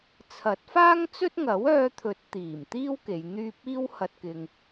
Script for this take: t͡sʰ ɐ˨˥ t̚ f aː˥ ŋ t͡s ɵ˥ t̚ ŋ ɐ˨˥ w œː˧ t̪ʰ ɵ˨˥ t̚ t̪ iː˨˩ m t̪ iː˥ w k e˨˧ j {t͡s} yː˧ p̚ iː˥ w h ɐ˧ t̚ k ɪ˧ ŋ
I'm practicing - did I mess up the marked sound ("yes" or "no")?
yes